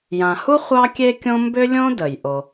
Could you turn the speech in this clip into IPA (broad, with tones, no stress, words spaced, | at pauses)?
jã˩hu˥ χʷɑ˥kʲe˥kʲõ˥ mbʏ˥lʲõ˥də˩j ʔo˩